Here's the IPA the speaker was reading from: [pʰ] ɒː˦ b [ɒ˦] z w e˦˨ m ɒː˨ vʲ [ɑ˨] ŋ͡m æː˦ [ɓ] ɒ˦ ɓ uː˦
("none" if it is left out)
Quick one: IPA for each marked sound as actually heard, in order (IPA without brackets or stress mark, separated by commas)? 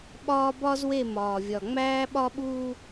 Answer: ɓ, ɒ˦, ɒ˨, ɓ